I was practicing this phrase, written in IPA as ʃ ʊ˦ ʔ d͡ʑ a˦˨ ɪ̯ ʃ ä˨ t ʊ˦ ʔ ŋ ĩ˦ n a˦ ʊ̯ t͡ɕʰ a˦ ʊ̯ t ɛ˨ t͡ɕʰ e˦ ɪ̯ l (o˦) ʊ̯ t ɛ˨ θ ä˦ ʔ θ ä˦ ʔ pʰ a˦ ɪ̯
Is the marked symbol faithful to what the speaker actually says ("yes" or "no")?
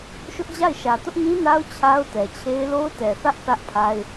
yes